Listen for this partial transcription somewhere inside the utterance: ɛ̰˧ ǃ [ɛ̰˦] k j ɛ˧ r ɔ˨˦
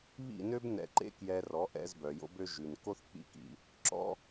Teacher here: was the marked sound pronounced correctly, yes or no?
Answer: no